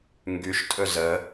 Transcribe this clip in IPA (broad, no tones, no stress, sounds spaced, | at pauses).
ŋ ɡ y ʃ tʼ ɵ z ə